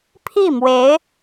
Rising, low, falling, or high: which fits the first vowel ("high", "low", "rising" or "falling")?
falling